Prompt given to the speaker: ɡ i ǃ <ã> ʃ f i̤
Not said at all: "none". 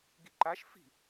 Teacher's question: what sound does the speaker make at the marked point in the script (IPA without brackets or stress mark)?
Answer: a